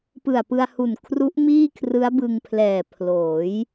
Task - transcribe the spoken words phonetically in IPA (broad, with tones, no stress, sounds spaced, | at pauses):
p ɯ˨˩ a̯ p ɯ˧ a̯ h u˨˩ n kʰ r u˦˥ ʔ m iː˥˩ kʰ r ɯ˦˥ a̯ b ɯ˧ ŋ pʰ l ɛː˨˩ pʰ l oː˩˦ j